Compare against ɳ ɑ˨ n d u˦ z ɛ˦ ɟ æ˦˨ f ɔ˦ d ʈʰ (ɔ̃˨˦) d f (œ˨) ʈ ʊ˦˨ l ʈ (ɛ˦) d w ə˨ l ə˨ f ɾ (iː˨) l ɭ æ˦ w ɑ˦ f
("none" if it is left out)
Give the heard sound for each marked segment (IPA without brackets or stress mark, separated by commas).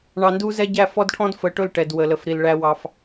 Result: ɔ̃˦, ə˨, ɛ˨, i˨